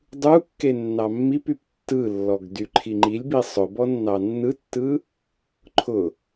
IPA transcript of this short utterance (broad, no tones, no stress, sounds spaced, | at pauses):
dˤ u kː e nː ɑ mː i p y p tː ɯ lː ɔ ɡ d y ǃʰ i ŋ͡ǃ i lʲ b i sˤ ʊ b ɔ nː ɑ nː ɯ tː ɯ | ǃʰ ʊ